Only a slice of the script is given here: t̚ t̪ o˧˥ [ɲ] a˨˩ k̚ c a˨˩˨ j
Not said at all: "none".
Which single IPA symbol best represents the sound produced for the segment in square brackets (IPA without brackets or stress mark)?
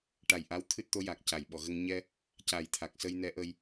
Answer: j